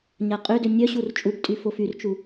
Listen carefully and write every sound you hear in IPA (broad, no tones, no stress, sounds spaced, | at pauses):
ɲ a qʼ ø d ø nʲ œ ɕ u r t͡ʃʼ u b tʼ y f o f y r t͡ʃ u